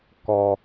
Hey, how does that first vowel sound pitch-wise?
low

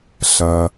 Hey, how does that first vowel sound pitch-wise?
low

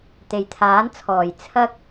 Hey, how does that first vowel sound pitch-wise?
low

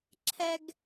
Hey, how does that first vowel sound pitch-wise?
high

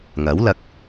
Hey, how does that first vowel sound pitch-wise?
rising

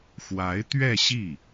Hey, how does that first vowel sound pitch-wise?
rising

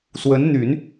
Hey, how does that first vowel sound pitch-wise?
rising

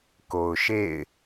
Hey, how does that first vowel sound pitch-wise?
low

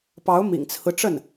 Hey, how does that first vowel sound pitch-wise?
rising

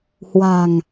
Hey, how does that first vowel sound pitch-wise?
low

